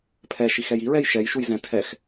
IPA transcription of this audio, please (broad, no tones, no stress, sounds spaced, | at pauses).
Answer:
pʰ ɛ ʃ i x ɛ j i ɹ ɛ j ʃ ɛ j ʃ u j z ɛ̃ tʰ ɛ x